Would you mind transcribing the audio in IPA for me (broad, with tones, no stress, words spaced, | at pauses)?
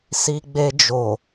si˧ɡ͡be˧d͡ʒo˨